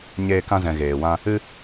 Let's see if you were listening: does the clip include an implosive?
no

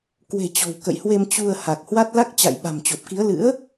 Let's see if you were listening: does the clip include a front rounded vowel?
no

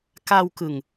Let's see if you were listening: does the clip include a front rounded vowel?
no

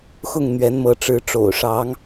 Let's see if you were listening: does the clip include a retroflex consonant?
yes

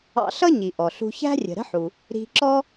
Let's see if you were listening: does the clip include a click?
yes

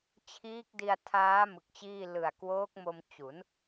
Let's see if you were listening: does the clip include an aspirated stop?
yes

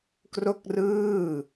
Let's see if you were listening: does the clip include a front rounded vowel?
no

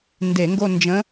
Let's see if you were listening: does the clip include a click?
no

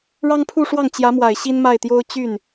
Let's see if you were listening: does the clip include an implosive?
no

